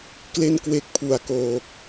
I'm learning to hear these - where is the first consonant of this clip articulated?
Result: velum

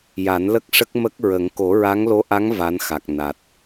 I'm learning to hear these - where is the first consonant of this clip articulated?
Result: palate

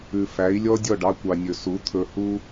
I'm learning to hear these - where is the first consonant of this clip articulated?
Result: lips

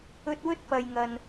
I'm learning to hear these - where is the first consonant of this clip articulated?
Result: tongue tip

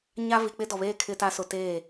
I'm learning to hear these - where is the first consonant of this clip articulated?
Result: palate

